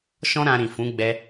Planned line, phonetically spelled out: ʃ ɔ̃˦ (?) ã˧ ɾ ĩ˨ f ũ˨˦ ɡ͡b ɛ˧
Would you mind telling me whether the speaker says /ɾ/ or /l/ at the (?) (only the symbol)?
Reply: ɾ